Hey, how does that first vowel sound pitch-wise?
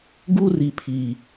high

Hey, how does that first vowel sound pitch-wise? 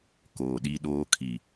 low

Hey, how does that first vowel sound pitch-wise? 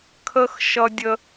high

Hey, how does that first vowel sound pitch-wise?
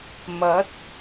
rising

